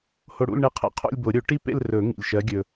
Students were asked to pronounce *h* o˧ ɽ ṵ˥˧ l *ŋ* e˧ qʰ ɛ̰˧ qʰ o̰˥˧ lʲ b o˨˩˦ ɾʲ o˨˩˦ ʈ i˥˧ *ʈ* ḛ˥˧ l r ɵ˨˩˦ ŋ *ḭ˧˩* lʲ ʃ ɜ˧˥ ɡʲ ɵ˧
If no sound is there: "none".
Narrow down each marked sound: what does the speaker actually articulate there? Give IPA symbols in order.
h, ɳ, p, ḭ˧˩

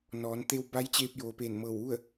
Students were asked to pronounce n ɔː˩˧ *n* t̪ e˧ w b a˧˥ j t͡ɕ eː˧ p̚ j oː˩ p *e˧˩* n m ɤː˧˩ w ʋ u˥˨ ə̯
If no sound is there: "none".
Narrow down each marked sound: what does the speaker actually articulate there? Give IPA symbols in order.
n, eː˧˩

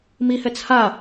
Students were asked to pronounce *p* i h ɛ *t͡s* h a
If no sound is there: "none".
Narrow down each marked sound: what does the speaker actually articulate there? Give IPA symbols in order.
m, t͡s

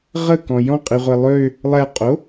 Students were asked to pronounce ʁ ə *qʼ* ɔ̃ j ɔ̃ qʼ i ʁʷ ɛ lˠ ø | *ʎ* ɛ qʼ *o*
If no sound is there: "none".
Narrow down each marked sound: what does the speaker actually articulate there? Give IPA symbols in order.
k, lˠ, o

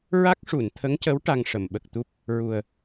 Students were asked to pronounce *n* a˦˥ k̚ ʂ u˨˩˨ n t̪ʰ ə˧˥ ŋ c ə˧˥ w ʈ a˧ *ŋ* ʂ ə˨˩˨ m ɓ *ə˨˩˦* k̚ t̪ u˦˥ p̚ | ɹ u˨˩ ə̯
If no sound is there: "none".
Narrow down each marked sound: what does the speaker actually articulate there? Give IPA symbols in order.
ɹ, ŋ, ə˨˩

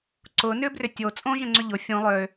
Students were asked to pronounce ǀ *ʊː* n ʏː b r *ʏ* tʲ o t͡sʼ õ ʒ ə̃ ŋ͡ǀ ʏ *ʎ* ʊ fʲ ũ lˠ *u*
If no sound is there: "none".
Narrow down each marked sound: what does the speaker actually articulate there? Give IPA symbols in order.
ʊː, ʏ, ʎ, ø

